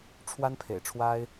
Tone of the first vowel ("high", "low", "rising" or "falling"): high